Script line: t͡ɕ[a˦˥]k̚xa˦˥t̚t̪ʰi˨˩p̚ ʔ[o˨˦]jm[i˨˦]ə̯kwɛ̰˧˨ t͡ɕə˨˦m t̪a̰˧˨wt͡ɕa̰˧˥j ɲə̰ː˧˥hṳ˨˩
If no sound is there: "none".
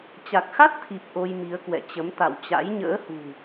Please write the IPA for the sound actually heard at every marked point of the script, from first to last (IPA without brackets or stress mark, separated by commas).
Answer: a˨˩, o˧, i˨˦